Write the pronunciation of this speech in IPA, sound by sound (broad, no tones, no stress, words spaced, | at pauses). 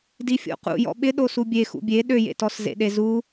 difʲo̰qṵ jɔ̰ɓɪɗo subʲe xṵbʲe ɗøjḛtɔs zḛɗezu